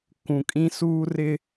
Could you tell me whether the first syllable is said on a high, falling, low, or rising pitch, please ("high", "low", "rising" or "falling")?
low